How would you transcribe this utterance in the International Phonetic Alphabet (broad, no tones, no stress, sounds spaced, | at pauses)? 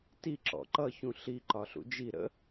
t i ǁ ɔ̰ ǃ ʌ ç ũ ɬ i ǃ ɒ ɬ ṵ d͡ʒ i ɾ ə̰